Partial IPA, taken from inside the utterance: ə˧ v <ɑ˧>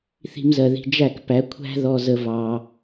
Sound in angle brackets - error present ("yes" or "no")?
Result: no